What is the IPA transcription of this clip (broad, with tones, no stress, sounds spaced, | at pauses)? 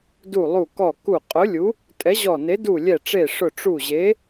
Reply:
d u˧˩ lˠ u˧˩ k ɔ˧˩ k u˧˩ qʼ ʊ˨˥ lʲ u˨˥ | tʼ ɛ˨˥ ʑ ɔ˧˩ n e˨˥ d u˧˩ lʲ ɛ˧˩ ʈ͡ʂ e˧˩ ʂ ʊ˧˩ ʈ͡ʂ u˧˩ ʑ e˨˥